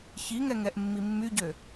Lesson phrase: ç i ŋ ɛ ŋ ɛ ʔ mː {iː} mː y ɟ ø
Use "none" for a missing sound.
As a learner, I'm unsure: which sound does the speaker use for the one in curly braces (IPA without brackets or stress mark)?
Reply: i